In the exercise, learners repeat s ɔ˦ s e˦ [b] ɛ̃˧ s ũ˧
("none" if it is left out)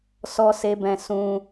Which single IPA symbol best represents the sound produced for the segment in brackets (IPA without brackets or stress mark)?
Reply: b